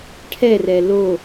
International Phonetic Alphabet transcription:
ʈʰ ɛ r ɛ l o

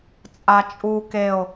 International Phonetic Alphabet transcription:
t͡sʼ a t͡ʃʼ u k e o̯

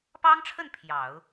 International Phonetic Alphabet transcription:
p ɑ˥ ŋ ʈ͡ʂʰ ə˥˩ n pʰ j ɑ˨˩˦ ʊ̯

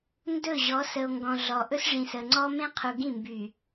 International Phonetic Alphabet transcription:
n d ɵ˦˨ ʑ ɔ˨˦ s ə˨ o̯ ŋ ɡ ɔ̃˨ ɮ ɔ˨ ʔ ɵ˦ s ʐ ĩ˨ s ə˨ ŋ͡ǀ ɔ˦ m ẽ˦ qʰ u˨ ɡ ĩ˦˨ m b y˨

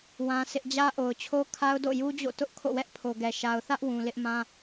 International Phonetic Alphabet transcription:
w ã˦ sʰ ɪ˦ ʔ d͡ʑ ä˦ ʔ o˨ ʊ̯ t͡ɕʰ o˦ kʰ a˦ ʊ̯ d o̰˦˨ j u˦ d͡ʑ o̰˦˨ t ʊ˦ ʔ kʰ o̰˦˨ w ɛ˦ ʔ pʰ o˨ ɡ ɛ˨ ʃ a˨ ʊ̯ θ ä˦ ʔ w ũ˨ l ɪ˦ ʔ m ã˦

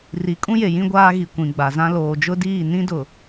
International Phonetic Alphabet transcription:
r i˨˦ kʼ ũ˦ j e˨ j ĩ˦ ɡʷ aː˦ ɣ i˨ kʷ ĩ˨ ɡ͡b a˨ z ã˦ l oː˨ d͡ʒ ʊ˦ d iː˦˨ n ĩ˦ d ʊ˨

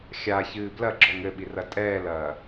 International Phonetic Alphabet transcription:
xʲ a ç ɨː b l ɐ ɡ͡ǁ ɔ ŋ ɘ ɓ i r ɐ tʼ ɛː l ɐː

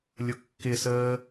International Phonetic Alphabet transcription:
lʲ ʊ kː ɪ s əː

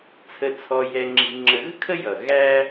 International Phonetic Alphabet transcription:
t͡sʰ ə˨ t͡sʰ ɔ˨ j ɛ˨ ŋ͡ǁ i̤˨ ŋ͡ǁ ə˨ ɣ ə̤˥ kʰ ə˦ j ʌ˩ ɣ æ˦

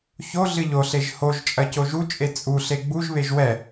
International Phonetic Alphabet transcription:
ç o ɮ ɨ ʎ o ɬ e ʒ h o ʒ t͡ʃʼ ɐ c o ʒ u t͡ʃʼ e t͡sʼ u ɬ e ɡ͡b u ʒ β e ʒ w ɛ

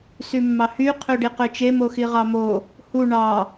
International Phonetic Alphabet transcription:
s y mː ɑ h y qʰ ø ɖ i q ø t͡ʃ e m o x i ʁ ɑ m o | h u ɳ ɑ

